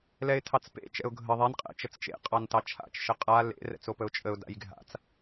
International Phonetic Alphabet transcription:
l ɛ ɪ̯ tʰ ɑ t͡s p ḛ t͡ʃ ɛ̰ ʊ̯ ɡʱ ə ðˤ ɛ n qʼ ɛ̰ t͡ʃ ə t͡s t͡ʃ ḛ qʼ ɑ n t ɑ t͡ʃʰ a̰ t͡ʃ ʃ ə qʼ a l ḛ r ɛ̰ t͡s o p ə ʊ̯ t͡ʃʼ ə ʊ̯ d a̰ j ɡʱ a̰ t͡s

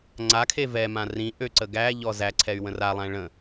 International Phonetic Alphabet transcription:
ŋ͡ǀ a kʰ e v ɛ m ã r ĩ ʔ ø ǀ ə ɡ æ ʎ ɔ z æ ǀʰ ɛ y̯ w ə̃ r a lˠ æ̃ ɭ ə̃

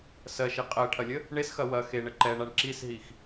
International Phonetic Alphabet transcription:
s ɜ ʃ e qʼ ɜ ʈʰ ɐ lʲ ə | ɳ e s x ɐ w ɐ x e ɳ ə ǃ ɛ ɳ a ɳ ǁ i s ɦ i x

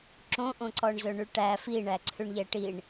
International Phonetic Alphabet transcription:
ǁ õ ʔ õ ǀ ɔ ɳ z ɵ ɳ y ʈ æ f i ɳ æ ǀʰ ʉ ɳ ʎ ɛ ʈ i ɳ

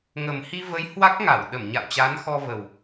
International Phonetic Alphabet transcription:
ŋ ə˨˩ m h i˧ v ə˨˦ j h w a˦˥ k̚ ŋ a˧˩ w ɗ ə˧˩ m ɲ a̰˧˨ w t͡ɕ aː˨˦ n x ɔ˧ v ə˨˩ w

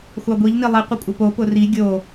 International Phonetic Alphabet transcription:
xʷ ɑ ɡʷ i ʎ n i lˠ i qʷ ə kʷʼ ə p o p ʊ r i ɡʲ o

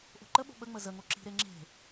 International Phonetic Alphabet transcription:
ʔ o̤ ǃ ə ɓ o̤ ɓ ə ŋ͡m ə z ə ŋ o ǁ i̤ ɾ e ŋ͡ǁ e̤

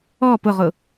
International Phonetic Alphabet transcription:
ɔ p ʊ ʁ ʊ

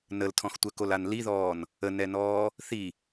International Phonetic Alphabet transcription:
n ə l tʰ ɔ̃ x tʷ ə k o l a n l i ð ɔː n | ə n ɛ n ɔː | θ i

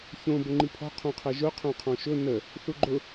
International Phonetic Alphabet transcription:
ç õ b ʊ ŋ͡ǃ i pʰ ɔ̤ qʰ õ qʰ ɛ ʒ ʊ qʰ õ qʰ ɔ̃ ʃ ʊ n ə | θ u ɡ͡ǃ ʊ

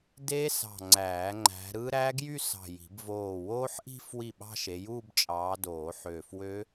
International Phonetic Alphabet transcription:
d e˦˥ s ɑ̤˧˩ ŋ͡ǀ æː˨˩˦ ŋ͡ǃ æ̤˨˦ ɾ ɯ˦˥ ɾ æ˦˥ ɡ j y˥˧ s ɑ̤˧˩ j i̤˨˩˦ b v oː˧˩ w oː˦˥ ħ ʔ i̤˥˧ f w i˥˩ ɓ ɑ̤˥˧ ʃ e˨˦ j uː˥˧ b t͡ʃʼ ɑː˨˦ d oː˨˩˦ ħ øː˧˩ f w ø˦˥

